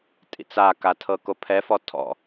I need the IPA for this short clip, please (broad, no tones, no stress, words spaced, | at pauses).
tʼḭt͡saka tʰɤkopʰɛfɔ tʰɔ̰